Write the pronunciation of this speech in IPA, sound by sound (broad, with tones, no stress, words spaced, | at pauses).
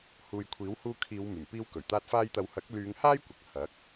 huː˨jkʷʰiː˨˥w huː˧ kʰiː˨˧w myː˨˩mpiː˧wkɵ˨˩ɥt̪aː˧t̚ faː˧jt̪ɐ˨˧w hɐ˨˥k̚lyː˨˧ŋ haː˥jkʷɐ˨k̚ hɐ˨˥k̚